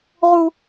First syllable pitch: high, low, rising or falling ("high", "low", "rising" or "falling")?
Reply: high